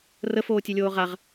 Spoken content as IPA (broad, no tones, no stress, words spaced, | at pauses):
rəfoːtʲelʲoː ʁaʁ